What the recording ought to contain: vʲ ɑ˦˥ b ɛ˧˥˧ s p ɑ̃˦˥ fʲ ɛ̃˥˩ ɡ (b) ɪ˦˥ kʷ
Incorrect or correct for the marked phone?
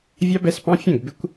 correct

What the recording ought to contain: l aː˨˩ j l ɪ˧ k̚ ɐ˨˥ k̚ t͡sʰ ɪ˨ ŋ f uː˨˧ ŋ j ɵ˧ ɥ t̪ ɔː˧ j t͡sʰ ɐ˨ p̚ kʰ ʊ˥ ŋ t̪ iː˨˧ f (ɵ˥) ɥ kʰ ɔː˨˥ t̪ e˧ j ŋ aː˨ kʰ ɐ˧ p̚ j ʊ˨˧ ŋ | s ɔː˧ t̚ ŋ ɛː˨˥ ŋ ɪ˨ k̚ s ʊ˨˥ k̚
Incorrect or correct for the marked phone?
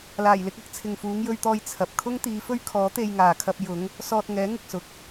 correct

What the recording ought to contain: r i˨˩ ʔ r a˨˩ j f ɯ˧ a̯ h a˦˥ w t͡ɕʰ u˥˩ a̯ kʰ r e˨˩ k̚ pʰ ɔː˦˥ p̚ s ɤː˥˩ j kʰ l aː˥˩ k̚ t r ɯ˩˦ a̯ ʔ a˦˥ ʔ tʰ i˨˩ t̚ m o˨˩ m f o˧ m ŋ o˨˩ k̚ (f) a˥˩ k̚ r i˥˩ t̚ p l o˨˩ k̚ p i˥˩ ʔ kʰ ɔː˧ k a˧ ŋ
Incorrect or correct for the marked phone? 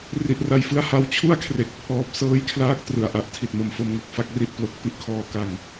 correct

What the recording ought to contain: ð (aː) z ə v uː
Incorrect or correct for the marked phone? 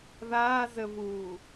correct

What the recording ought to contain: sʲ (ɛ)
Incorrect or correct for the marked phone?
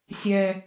correct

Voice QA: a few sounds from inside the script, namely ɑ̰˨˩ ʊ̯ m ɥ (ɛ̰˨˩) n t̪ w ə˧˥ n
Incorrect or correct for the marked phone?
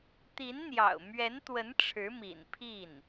incorrect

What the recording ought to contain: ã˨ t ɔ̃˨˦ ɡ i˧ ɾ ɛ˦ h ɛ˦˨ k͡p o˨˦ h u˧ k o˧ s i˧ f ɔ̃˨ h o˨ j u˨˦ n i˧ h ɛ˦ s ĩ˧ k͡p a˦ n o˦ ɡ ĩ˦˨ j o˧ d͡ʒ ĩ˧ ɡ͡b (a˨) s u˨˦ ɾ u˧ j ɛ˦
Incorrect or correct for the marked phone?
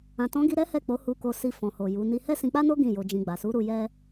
correct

